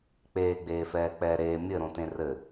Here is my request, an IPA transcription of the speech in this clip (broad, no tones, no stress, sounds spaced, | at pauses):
k͡p eː ɡ͡b eː f ɛː k͡p ɛː ɾ eː mʲ ɘ ɾ õ t ẽ r ɘ